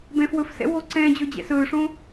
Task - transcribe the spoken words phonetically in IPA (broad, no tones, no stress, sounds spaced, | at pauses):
b ɛ̃ f w ɵ f s ɛ̰ w oː ǀ ɛ̃ː d͡ʑ ɵː d͡ʑ ɛ̰ s ɵː ʂ õ